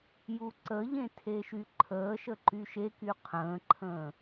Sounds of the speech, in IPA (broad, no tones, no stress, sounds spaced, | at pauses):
j u ǀ ə ʎ ẽ tʰ e ʃ y ǃʰ əː ʃ ə ǃ y ʃ e k y qʰ ə̃ː ǃʰ ə̃ː